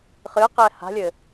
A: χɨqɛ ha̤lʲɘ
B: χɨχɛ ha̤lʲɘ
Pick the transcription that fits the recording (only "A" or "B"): A